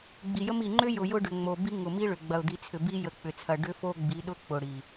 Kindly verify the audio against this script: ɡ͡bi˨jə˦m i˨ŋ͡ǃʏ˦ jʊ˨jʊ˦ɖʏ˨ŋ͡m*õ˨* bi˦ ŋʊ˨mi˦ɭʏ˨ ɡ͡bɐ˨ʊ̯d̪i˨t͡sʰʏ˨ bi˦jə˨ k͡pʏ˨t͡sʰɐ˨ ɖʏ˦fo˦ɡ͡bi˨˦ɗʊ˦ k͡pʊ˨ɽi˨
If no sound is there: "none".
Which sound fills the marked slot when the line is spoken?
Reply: o˨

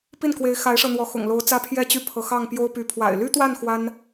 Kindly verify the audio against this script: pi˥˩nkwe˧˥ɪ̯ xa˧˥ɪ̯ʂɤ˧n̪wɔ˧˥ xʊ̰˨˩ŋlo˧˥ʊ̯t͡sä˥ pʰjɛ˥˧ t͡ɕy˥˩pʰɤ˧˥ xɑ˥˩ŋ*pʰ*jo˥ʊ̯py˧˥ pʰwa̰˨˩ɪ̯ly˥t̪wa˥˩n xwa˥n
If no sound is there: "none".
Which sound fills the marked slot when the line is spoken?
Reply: p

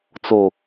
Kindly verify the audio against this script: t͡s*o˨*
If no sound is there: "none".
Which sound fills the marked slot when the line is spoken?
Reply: o˨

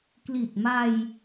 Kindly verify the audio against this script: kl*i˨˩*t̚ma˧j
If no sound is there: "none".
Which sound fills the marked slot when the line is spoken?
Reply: i˨˩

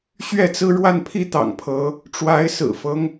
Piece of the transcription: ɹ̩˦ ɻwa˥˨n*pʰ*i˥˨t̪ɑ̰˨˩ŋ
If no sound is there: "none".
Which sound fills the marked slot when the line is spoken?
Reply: pʰ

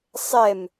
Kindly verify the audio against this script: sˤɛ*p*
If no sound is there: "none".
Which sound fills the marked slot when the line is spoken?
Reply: m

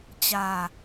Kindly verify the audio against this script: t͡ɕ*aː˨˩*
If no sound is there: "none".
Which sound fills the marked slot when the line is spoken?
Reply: aː˧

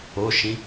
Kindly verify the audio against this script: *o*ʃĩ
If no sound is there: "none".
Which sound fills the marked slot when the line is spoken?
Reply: o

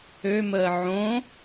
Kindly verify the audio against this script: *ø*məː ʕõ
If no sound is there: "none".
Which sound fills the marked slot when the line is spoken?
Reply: ø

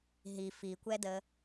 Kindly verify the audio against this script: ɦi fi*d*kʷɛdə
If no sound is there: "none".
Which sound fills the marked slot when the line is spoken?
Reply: none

